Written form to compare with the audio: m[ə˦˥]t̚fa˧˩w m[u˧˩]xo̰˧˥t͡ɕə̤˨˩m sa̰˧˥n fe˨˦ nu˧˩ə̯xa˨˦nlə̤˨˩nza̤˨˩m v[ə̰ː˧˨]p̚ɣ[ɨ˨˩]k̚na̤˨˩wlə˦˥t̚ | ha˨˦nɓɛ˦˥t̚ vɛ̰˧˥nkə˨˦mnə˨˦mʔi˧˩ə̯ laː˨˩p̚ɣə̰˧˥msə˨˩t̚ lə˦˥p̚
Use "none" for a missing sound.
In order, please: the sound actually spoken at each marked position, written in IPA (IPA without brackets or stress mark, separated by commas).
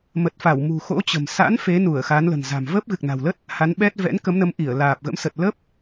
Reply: ə˨˩, ṳ˨˩, əː˦˥, ɨ˨˩